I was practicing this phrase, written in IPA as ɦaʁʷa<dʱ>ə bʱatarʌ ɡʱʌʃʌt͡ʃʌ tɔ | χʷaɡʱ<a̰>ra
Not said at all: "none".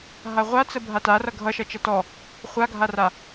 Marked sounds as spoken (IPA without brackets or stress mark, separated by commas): t͡s, a